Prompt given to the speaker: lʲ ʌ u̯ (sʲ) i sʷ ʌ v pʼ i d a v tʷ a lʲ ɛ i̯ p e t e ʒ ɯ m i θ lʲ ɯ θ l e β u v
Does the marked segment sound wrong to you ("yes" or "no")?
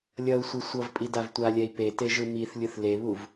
yes